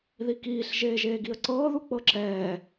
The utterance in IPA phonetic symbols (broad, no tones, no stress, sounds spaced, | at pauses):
ð i k iː ɬ ʒ eː ʒ eː ɡ i ə̯ ǀ ɤː ð u k͡p ɤ ǁ ɛː